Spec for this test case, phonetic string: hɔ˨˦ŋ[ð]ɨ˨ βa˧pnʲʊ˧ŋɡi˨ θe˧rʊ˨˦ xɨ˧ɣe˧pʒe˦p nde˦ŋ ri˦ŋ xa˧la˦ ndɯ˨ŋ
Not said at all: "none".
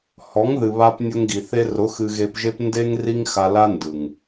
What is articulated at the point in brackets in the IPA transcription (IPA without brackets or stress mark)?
ð